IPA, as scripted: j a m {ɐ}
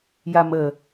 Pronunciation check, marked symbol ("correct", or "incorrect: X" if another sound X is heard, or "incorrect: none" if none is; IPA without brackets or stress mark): incorrect: ə